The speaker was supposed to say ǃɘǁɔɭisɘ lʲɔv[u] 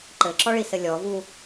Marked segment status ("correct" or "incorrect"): correct